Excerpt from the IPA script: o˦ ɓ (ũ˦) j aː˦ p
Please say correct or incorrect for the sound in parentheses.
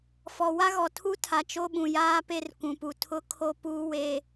incorrect: ũ˨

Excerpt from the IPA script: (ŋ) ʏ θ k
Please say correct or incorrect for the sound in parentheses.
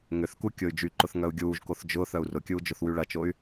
correct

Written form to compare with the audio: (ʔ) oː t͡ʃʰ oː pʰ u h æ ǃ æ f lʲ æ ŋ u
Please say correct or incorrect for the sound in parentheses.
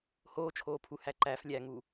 incorrect: h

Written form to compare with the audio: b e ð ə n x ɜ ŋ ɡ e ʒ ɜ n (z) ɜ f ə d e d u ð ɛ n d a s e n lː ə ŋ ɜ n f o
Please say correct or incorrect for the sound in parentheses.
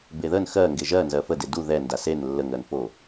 correct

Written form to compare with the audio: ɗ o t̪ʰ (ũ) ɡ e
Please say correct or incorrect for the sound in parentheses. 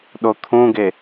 correct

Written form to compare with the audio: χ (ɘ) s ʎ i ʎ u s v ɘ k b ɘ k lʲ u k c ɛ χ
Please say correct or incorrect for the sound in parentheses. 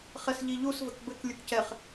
incorrect: ɛ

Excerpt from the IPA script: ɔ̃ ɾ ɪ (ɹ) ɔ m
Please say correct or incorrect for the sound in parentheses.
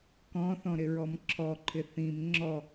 correct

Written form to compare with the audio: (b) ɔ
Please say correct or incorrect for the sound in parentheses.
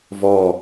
incorrect: v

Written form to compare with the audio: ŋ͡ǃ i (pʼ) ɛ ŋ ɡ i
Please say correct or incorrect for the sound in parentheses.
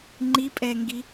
correct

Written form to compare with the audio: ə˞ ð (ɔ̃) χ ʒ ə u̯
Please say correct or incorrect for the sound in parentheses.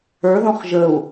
correct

